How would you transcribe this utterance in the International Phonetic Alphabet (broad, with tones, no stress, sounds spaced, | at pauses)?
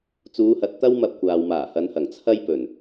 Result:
t͡s uː˨˧ h ɐ˨ t̚ t̪ ɐ˥ w m ɐ˧ p̚ kʷ aː˨ w m aː˨˩ h ɐ˨˧ n h ɐ˨˩ ŋ t͡sʰ ɐ˥ j p ɵ˨˩ n